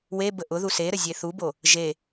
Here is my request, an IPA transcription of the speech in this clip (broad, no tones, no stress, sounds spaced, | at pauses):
w e b ə ʔ ʊ ð u s e ɾ ə zʲ e θ u b o | ʒ e